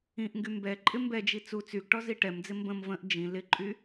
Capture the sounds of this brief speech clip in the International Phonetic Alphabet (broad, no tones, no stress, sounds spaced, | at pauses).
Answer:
ĩ ʔ ŋ ɡ y m b ɛ ǃʼ ɪ m b ɛ d͡ʒ i t͡s u t͡s y ɡ ʈ ɔ z i ʈ ɛ m d͡z ɪ m b ə̃ m v ə̃ ʔ d͡ʒ ĩ l ɪ ǃʼ y